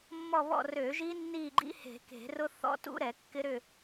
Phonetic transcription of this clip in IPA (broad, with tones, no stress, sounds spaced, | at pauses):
mː ɔ˦˨ β ɔ̰˦˨ r ø˧˩˧ ʒ i˦˥ nː i˦˨ ɡ͡ǃ ḭ˦˥ h e̤˧˩˧ k e̤˧˩˧ r ʊ˦˥ θ ɔ̰˦˥ t ṵ˦˥ ɾ ɛ˧˩˧ kː ɪ˦˥ ɾ ʏ˦˨